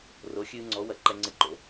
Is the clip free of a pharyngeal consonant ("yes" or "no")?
yes